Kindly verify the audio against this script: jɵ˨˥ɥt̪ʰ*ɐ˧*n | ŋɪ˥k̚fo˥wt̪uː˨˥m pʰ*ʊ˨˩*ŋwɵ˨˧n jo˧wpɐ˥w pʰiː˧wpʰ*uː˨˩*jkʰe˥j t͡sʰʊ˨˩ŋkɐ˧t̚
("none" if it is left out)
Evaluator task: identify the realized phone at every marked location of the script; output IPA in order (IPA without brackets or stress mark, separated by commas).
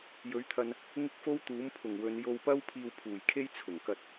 ɐ˧, ʊ˨˩, uː˨˩